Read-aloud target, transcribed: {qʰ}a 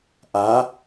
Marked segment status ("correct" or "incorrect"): incorrect